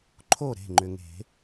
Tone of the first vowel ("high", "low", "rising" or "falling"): falling